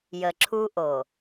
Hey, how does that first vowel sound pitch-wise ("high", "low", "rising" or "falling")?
low